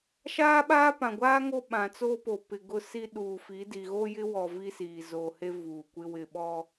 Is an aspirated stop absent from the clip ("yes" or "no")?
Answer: yes